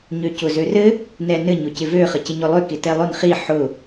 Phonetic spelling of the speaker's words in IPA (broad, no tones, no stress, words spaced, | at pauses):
ɲøcʊzørɘ | nɛnɘ ɲʊcɪvø χəcɪɲʊlˠø kɪtɛlˠʊn χi ħʊ